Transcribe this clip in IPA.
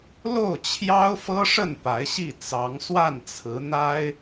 l o˥˩ ʊ̯ t͡ɕʰ j ɑ˥ ʊ̯ f ɤ˥ ʂ ə˥˩ n p a˧˥ ɪ̯ ɕ i˥˩ t͡s ɑ˧˥ ŋ s w a˥˩ n t͡sʰ ɹ̩˧˥ n̪ a˥ ɪ̯

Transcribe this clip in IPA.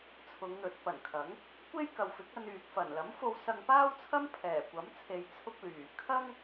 t͡sʰ ʊ˨˧ ŋ n̪ ɵ˨˥ t̚ p ɐ˨˩ n kʰ ɐ˨˥ ŋ | kʷ e˥ j k ɐ˨ w f ɪ˨˥ k̚ ɐ˧ n yː˨ k̚ f ɐ˨˩ n l ɐ˨˥ m f o˧ w s ɐ˧ ŋ p aː˥ w t͡sʰ ɐ˥ m pʰ ɛː˨˩ kʷ ɐ˨˥ m t͡sʰ e˨ j t͡sʰ ʊ˧ k̚ l yː˨˩ kʰ ɐ˥ ŋ

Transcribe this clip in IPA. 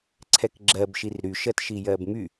ǀʰ ɛ k ɡ͡ǁ ɜ b ʃ i r ɾ y ʃ ɜ t ʃ i j ɜ b m y

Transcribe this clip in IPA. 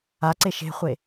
a ǀ e ʃ e̤ χʷ e

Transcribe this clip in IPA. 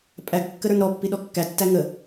pʼ æ ɡ kː ə ɾ ə˞ n ɾ ɔ pː i ɗ ɔ kː æ tː æ ŋ ə

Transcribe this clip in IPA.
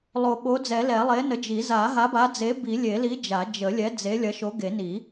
lˠ o˨˩˦ ɓ o˨˥ d͡z ɛ˨˩˦ l ɛ˨˩˦ lˠ e˨˥ n ə˨˥ d͡ʒ i˨˩˦ z a˨˩˦ ɦ a˨˥ b a˨˥ d͡z e˨˥ b i˨˩˦ lʲ e˨˩˦ l i˨˥ d͡ʒ a˨˩˦ d͡ʒ ə˨˩˦ lʲ ɛ˨˥ d͡z e˨˥ lʲ ɐ˨˥ ʃ o˨˥ ɡ e˨˩˦ n i˨˩˦

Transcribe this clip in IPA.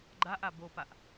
ɡ͡ǃ a ʔ a b o p a ʔ

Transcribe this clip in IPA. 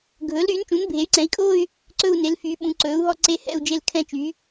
ɡʱ ɵː˩˥ l ɾ yː˩˥ n t͡ʃ ũ˩˥ n bʱ e˩˥ y̯ ǀ ɛ̃˩˥ i̯ kʼ oː˥˧ y̯ | ǀ ɵ˥˧ u̯ n e˩˥ l f yː˩˥ ɓ ũ˩˥ ǀ ɵː˩˥ u̯ ɦ ɔ˥˧ ǀ e˥˧ h ɛ̰˥˧ u̯ d͡ʒ e˥˧ l kʰ ɛ̃˥˧ t͡ʃ yː˩˥

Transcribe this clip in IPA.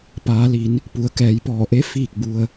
p aː˩˧ l i˩˧ n | p u˩ ə̯ k ɛː˩˧ j p ɔː˧˩ ʔ e˧˥ f iː˥˨ k̚ b u˧ ə̯

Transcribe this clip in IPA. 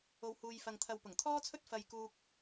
o˨˧ w h uː˨ j f ɐ˨ ŋ t̪ʰ ɐ˨ w p ʊ˨˩ ŋ t̪ʰ ɔː˥ t͡sʰ ɵ˥ t̚ f ɐ˧ j k uː˧ k̚

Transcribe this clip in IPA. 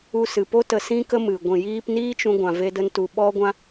u˧ s ɨ˨ p o˦ t ə˧ s ĩ˦ k ə˦ m ɨ˨ ɡʷ ĩ˨ j iː˧ p n iː˦ t͡ʃ ũ˧ ɡʷ ã˨ v e˧ d ə˧ n t u˨ ɓ ɔ˧ ɡʷ ã˧

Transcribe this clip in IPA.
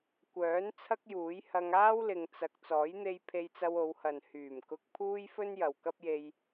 kʷ œː˨˥ n t͡sʰ ɐ˥ k̚ j uː˨˥ j h ɐ˧ ŋ aː˥ w l ɪ˨ ŋ t͡s ɐ˨ k̚ t͡s ɔː˨˥ j n̪ e˧ j pʰ e˧ j t͡s ɐ˧ w o˨˧ w h ɐ˨ n h yː˨˩ m k ʊ˧ k̚ pʰ uː˥ j f ɵ˥ n j ɐ˨ w k ɐ˥ p̚ j e˧ j

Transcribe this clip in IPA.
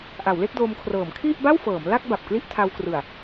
ʔ a˩˦ w l e˥˩ k̚ d o˧ m kʰ r ɤː˩˦ m kʰ i˥˩ ʔ b a˥˩ w f ɤː˩˦ m l a˥˩ k̚ b a˨˩ p̚ k l i˥˩ ʔ tʰ a˧ w k r ɯ˨˩ a̯

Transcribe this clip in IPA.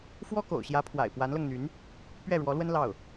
f w ɔ˥ k o̰˨˩ ʊ̯ ɕ j ä˧˥ pʰ w a̰˨˩ ɪ̯ p w a˧˥ n l ɤ˧ ŋ n̪ y˧˥ n | p ɥ ɛ˥˩ ɻ w ɔ˧˥ l w ə˥ n l ɑ˥˩ ʊ̯

